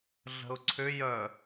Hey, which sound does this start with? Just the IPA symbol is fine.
ɮ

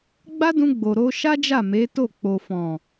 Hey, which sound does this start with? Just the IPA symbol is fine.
ɡ͡b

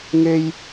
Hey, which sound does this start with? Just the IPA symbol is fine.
ŋ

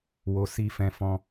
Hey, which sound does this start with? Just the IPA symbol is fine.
w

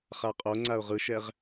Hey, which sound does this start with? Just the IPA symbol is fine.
χ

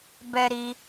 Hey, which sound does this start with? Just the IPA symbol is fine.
b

